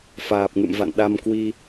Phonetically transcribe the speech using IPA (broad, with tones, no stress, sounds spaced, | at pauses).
f aː˨˩ p̚ ŋ ɨ̰˧˨ m v a̰˧˨ n ɗ a˧ m k w i˧